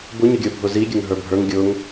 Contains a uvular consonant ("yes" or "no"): no